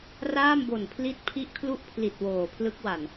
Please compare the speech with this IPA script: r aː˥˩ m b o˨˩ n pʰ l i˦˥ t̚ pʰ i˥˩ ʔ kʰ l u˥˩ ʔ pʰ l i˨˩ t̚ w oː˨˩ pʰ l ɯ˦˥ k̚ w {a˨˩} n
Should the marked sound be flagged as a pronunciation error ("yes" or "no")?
no